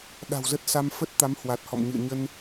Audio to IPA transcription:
ɗ a̤˨˩ w z ə˦˥ t̚ s a˧ m f ə˦˥ t̚ t̪ a˨˦ m h w a˨˩ t̚ h ɔ̰˧˨ m ɲ ɨ̰˧˨ ə̯ ɲ ə˧ n

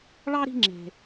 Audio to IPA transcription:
ɭ ɑ˥ ɾ i̤˦ ŋ͡ǁ e̤˩

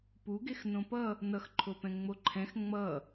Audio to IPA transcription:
p u ɡ e x n õ p ʌ | n ʌ x ǃʰ o p ɛ̃ ŋ͡m o ǃʰ ɛ̃ x ŋ͡m ʌ

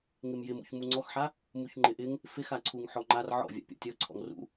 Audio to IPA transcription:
ŋ ɪ m j ɪ m ṵ ç m u ŋ͡ǀ ɔ x ħ a | m u ç ŋ͡ǃ ɪ ʔ ɪ ŋ | f ɪ x a ǀʰ u ŋ ħ ɔ ŋ͡ǃ a r ʕ ɔ̰ vʲ a̰ pʲ ɔ̰ tʲ ɔ ǀʰ ɔ̰ ŋ r ṵ

